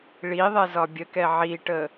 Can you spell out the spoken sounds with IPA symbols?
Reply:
ɭi ðˤɛzɒbʲəkɛ ʕiʈə

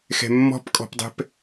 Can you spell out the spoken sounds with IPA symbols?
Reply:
xɛ̤mːɔ̤pkʼɔ̤pdˤɛ̤p

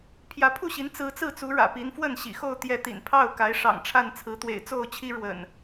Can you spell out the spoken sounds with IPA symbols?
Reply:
pʰjä˨˦pʰu˥˨ɕi˨˦n t͡sɹ̩˨˦t͡sɹ̩˥˨t͡su˨˦ ɻä̰˨˩pi˨˦nfwə˥˨n ɕḭ˨˩xo˥˨ʊ̯ t̪jɛ˨˦t̪ḭ˨˩npʰɑ˥˨ʊ̯ka˨˦ɪ̯ ʂɑ̰˨˩ŋʈ͡ʂʰa˥˨n t͡sʰɹ̩˨˦t̪wḛ˨˩ɪ̯t͡so˥˨ʊ̯t͡ɕʰi˦ ɻwə̰˨˩n

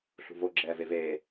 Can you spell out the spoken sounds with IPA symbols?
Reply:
ɬṳvo ɡ͡ǁɛːveveː

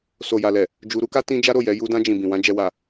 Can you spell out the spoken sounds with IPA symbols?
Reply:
so˨ja˨lɛ˨ | d͡ʒu˧ɾu˦ka˦ tĩ˦d͡ʒa˦ɾo˦˨jɛ˨˦ ju˧dã˧d͡ʒĩ˨ bĩ˨wã˧ d͡ʒɛ˨wa˨

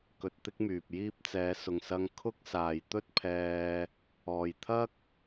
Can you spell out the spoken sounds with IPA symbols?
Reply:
kɵ˧t̚t̪ɪ˥k̚myː˨p̚jiː˥p̚ t͡sɛː˨˧sʊ˨ŋsɐ˧ŋ kʰʊ˥k̚ saː˨jt̪ɵ˥t̚pʰɛː˧ | ɔː˨jt̪ʰɐ˥k̚

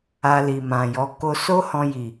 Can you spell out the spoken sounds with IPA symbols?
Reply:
a˧li˨mã˨jɔ˨˦ ko˧so˦hɔ̃˧ji˨

